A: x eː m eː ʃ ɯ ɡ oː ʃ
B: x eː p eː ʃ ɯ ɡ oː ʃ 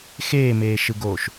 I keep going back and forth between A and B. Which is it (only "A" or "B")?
A